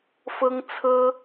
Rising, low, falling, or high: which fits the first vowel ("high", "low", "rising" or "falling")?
high